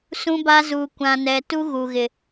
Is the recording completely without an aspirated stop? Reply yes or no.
yes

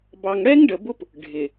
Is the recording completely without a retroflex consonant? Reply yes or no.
no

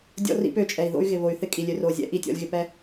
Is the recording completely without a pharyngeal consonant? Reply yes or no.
yes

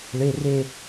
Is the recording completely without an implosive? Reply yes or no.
yes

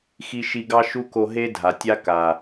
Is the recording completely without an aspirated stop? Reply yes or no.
yes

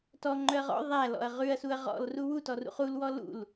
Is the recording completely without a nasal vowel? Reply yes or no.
yes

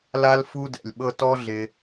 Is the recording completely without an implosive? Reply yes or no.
no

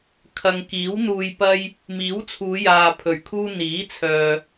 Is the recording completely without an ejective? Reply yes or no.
yes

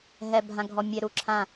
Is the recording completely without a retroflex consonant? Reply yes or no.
yes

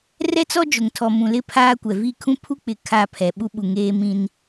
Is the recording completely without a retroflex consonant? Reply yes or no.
yes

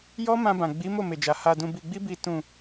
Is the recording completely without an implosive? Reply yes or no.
yes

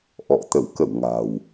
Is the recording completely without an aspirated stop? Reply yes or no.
yes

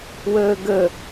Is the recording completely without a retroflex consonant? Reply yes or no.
yes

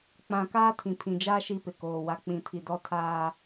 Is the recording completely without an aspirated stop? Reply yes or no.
no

